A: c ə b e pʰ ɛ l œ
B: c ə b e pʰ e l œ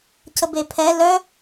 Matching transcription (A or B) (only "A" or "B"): A